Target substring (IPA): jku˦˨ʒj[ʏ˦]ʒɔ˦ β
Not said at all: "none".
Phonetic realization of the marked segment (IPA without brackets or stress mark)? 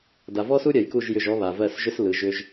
ʏ˦˨